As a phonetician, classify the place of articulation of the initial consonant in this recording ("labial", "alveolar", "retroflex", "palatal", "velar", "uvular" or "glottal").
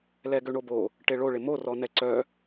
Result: alveolar